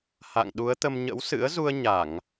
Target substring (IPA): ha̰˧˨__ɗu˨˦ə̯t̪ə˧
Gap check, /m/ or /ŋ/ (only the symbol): ŋ